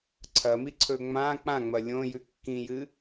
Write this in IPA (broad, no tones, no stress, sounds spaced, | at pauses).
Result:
ǀʰ ɐ m i ǀʰ ɵ ŋ͡m ã k͡p ã ŋ͡m ɐ lʲ õ j ʉ kː ĩ j ɨ